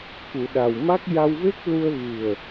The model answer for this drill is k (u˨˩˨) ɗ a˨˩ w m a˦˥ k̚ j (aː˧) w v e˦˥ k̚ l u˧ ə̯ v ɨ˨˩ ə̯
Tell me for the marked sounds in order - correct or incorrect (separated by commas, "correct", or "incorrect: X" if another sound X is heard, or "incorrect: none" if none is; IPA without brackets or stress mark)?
correct, incorrect: a˧